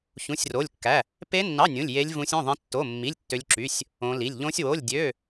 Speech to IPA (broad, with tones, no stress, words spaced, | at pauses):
çũ˧˥˧sʲro˧˥˧lʲkːæ˧˥˧ | pe˦˥nːɑ˧˥˧ nʲũ˧˥˧lʲje˦˥lʲvũ˦˥sʲ õ˧˥˧ðˤẽ˦˥tːo˧˥˧mːi˧˥˧lʲ tːø˦˥lʲǁy˧˥˧sʲ | õ˦˥li˧˥˧lʲ ʎõ˦˥sʲwo˧˥˧lʲdʲø˧˥˧